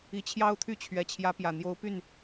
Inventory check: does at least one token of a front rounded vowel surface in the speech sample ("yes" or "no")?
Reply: yes